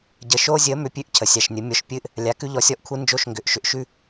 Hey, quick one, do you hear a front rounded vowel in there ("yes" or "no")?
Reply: yes